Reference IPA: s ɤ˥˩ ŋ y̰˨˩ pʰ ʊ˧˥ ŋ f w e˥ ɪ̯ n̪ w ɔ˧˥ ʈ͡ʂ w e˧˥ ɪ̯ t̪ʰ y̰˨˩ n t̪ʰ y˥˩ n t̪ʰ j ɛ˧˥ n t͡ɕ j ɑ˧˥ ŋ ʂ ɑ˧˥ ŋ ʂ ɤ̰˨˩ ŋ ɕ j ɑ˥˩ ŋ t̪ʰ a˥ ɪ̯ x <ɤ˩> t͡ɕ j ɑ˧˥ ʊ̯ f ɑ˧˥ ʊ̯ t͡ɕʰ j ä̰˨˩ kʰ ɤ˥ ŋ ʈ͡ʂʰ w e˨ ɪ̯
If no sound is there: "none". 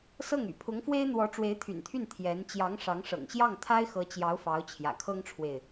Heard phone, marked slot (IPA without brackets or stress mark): ɤ˧˥